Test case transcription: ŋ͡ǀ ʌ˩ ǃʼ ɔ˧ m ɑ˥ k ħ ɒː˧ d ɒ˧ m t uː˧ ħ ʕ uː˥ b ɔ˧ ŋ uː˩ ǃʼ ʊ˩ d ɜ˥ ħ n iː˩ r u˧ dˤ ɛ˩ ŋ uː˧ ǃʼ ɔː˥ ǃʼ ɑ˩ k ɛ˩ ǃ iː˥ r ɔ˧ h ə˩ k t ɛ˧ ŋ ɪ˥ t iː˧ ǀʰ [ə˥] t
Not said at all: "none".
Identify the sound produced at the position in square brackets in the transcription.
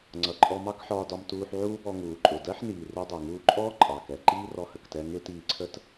ə˥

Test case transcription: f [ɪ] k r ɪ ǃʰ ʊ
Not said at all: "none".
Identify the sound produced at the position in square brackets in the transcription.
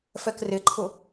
ɛ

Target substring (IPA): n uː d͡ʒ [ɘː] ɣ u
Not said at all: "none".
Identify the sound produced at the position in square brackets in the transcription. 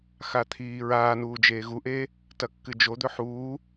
eː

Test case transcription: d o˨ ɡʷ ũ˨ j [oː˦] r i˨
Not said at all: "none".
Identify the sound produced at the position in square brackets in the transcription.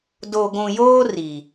oː˦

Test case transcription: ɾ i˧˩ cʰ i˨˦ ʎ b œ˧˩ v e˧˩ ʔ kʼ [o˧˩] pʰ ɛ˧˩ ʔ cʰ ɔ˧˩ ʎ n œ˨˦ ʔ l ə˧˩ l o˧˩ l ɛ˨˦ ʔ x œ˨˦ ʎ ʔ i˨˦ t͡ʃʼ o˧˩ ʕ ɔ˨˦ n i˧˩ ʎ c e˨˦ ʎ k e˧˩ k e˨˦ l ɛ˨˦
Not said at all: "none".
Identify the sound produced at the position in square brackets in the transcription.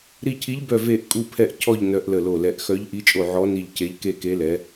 u˧˩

